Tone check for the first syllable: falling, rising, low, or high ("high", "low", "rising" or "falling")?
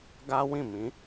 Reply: high